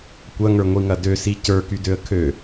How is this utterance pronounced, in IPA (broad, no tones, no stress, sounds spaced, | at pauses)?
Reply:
kʷ ɐ ŋ ə˞ ŋʷ i ŋ ɐ d ø s i c ə˞ k y d ø ə̯ kʰ ø